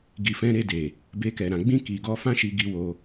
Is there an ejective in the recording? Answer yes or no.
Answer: no